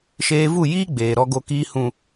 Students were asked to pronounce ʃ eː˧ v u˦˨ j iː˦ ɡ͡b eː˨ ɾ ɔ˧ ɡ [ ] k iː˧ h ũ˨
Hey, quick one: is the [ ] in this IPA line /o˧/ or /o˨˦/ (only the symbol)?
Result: o˧